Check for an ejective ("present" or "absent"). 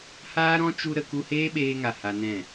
absent